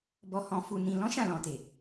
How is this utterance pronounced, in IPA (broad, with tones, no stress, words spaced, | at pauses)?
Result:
bɔ˨hɔ̃˨fu˨nĩ˨ lɔ̃˨˦ʃã˦˨lɔ̃˨te˨